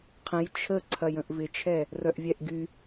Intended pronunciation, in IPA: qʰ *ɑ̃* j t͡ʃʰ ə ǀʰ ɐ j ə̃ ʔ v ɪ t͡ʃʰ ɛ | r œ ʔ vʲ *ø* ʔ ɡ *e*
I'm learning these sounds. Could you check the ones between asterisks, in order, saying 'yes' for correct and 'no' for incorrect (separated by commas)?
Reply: no, no, no